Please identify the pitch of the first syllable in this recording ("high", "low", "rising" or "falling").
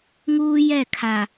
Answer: high